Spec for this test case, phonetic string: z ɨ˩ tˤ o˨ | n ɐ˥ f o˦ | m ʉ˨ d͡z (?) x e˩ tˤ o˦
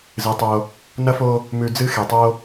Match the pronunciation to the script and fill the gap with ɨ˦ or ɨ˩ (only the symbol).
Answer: ɨ˦